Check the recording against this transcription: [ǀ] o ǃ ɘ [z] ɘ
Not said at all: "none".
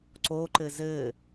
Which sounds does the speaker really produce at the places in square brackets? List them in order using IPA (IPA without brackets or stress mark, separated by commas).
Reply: ǀ, z